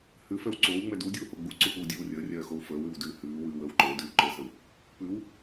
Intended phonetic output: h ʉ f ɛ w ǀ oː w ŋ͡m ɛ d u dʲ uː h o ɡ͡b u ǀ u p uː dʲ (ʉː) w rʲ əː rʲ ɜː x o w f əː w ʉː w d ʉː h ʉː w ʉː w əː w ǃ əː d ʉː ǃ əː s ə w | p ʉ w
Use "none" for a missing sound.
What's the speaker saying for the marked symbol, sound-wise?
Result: ʉː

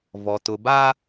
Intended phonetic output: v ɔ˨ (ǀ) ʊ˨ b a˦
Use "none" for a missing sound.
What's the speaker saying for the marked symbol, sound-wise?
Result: t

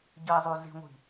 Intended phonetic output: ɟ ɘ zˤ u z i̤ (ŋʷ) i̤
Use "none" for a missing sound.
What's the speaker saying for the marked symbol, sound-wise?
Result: ŋʷ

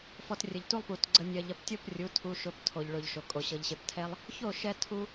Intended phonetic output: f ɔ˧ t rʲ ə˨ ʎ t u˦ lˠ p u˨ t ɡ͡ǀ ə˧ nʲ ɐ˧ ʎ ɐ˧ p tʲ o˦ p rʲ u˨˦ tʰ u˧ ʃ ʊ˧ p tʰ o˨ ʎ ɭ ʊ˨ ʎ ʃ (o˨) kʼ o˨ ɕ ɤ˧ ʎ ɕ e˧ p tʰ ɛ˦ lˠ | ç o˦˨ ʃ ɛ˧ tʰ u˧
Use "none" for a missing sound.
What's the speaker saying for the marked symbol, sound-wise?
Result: o˨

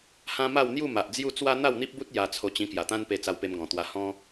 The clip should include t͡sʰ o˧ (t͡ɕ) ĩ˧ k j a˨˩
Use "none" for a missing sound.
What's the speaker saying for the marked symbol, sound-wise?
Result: t͡ɕ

